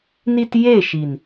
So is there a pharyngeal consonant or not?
no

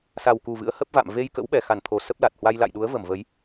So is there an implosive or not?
yes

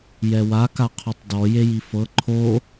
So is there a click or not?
yes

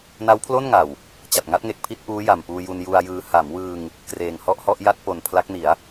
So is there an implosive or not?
no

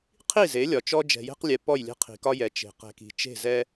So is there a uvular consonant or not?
yes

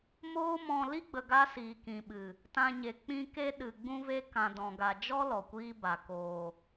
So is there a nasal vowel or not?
yes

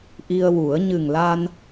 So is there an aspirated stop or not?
no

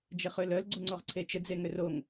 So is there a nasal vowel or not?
no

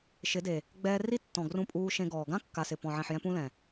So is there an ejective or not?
yes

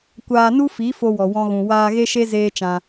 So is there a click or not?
no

